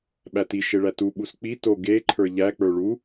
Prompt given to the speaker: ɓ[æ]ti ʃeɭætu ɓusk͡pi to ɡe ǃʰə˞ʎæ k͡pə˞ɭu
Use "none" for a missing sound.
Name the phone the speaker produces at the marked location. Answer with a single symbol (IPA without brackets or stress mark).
æ